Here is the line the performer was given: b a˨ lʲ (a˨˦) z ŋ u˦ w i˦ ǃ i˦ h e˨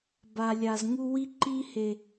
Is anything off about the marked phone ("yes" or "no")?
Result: yes